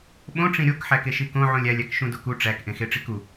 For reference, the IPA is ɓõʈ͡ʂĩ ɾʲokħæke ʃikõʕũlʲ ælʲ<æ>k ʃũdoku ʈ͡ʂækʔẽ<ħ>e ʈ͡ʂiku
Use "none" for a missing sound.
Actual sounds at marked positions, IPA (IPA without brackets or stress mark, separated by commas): æ, x